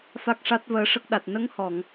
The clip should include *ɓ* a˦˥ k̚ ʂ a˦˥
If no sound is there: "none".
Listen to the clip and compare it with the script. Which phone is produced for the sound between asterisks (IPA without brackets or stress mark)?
f